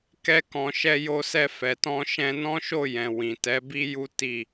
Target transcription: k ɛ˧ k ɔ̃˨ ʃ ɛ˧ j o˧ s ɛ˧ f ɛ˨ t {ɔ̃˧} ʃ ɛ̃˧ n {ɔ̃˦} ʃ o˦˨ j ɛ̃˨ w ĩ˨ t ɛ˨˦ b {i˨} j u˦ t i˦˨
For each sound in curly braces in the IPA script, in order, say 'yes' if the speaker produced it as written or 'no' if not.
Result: yes, yes, no

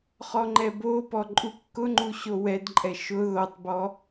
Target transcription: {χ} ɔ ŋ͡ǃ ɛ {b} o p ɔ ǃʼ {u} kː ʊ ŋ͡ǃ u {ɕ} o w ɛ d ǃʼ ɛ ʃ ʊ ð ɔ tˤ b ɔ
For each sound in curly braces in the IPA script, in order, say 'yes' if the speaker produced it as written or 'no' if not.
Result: yes, yes, yes, yes

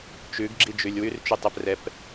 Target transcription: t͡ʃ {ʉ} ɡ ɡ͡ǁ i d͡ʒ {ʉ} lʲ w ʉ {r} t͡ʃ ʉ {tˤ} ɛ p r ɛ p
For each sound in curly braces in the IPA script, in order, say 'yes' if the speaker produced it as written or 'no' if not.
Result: yes, yes, yes, yes

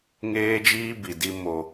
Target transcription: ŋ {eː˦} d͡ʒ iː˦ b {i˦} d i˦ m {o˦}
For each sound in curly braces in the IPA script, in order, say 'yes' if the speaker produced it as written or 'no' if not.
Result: yes, no, yes

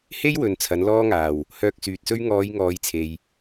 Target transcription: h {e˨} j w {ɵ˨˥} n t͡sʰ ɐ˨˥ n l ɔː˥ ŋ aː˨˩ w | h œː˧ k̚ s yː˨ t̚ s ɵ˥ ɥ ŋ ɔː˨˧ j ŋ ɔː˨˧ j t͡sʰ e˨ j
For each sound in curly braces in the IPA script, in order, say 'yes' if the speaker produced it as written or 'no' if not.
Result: no, no

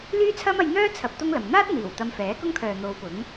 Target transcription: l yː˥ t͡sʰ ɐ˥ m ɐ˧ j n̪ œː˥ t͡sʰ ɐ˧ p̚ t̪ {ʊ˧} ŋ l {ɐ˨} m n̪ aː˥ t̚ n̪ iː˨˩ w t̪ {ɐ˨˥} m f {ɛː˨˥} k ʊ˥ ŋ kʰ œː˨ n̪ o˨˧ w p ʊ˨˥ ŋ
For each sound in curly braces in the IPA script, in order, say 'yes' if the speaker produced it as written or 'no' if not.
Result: no, yes, no, yes

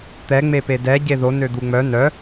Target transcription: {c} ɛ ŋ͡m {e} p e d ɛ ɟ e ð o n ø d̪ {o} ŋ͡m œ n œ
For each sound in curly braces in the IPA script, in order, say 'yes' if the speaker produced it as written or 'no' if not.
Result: no, yes, no

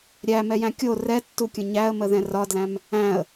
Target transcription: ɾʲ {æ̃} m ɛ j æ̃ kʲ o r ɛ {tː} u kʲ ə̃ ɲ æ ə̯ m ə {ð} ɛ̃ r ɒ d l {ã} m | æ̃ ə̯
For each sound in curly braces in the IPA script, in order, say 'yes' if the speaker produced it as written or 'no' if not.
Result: no, yes, yes, no

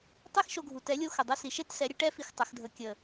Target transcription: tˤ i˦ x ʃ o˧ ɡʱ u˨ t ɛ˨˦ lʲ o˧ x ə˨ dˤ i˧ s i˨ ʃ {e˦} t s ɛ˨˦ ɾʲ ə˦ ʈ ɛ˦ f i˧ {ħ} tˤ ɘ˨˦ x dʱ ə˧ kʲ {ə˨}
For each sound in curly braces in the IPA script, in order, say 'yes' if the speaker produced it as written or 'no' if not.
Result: yes, no, yes

